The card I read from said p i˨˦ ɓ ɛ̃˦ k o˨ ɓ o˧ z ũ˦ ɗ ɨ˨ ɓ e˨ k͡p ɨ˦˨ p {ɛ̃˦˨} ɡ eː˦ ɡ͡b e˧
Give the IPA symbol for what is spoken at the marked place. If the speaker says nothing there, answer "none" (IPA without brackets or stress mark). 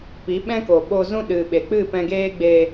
ɛ̃˧